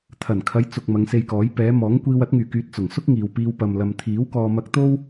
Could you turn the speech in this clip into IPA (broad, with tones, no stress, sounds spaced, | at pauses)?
t̪ʰ ɐ˨˩ n kʰ ɐ˨˧ j t͡s ʊ˨ k̚ m ɐ˨˧ ŋ s e˧ j k ɔː˨˥ j p ɛː˨˧ m ɔː˨˥ ŋ kʷ iː˧ w ɐ˨˥ t̚ ŋ yː˨˩ k yː˨ t̚ t͡s ʊ˨˩ ŋ s ʊ˥ k̚ ŋ iː˨ w p iː˧ w p ɐ˨ m l ɐ˨ m t̪ʰ iː˨˥ w k ɔː˧ m ɐ˧ k̚ t̪ o˥ w